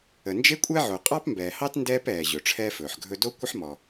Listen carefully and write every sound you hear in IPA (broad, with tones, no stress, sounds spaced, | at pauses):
ə˩ n d͡ʒ e˥ kʷʼ ɛ˥ ʕ o˩ qʼ ɑ˥ p m b ɛː˩ h ɑ˥ t n d ɛː˥ p ɛː˩ ʑ ɵ˩ ʈ͡ʂʰ ɛː˥ f ɵː˩ ħ ɡʱ ɵ˥ d o˥ kʷ ə˥ ħ m ɔ˩